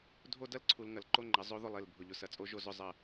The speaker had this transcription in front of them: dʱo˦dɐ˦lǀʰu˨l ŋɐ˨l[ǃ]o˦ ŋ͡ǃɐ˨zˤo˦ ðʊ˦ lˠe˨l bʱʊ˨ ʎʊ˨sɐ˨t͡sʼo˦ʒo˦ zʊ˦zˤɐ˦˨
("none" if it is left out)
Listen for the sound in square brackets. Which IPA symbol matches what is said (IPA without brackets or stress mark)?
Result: ǃ